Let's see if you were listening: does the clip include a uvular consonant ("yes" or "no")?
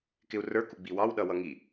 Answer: no